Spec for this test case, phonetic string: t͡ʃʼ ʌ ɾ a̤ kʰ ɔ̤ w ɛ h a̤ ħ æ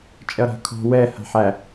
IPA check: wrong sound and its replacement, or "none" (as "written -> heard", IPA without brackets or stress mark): none